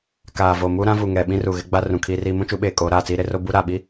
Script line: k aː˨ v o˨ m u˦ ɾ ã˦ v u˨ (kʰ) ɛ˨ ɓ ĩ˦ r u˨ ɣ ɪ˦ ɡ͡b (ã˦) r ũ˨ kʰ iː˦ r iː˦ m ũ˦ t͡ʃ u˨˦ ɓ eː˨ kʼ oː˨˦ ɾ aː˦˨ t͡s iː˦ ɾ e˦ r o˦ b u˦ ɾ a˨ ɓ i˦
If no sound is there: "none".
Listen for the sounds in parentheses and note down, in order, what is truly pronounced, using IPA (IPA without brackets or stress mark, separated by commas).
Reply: ŋ, a˦